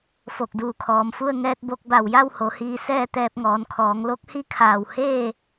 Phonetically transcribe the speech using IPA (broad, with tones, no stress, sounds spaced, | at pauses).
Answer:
f o˧˩ k̚ d uː˧˩ kʰ ɔː˩ m f u˥˨ ə̯ ŋ ɛː˧ t̚ b o˧ k̚ b a˧˩ w j a˥˨ w h o˩˧ h iː˧ s ɛː˥˨ t̪ ɛː˧ p̚ ŋ ɔː˩˧ n kʰ ɔː˩˧ ŋ l o˧˥ k̚ h i˥˨ kʰ aː˧˩ w h eː˥˨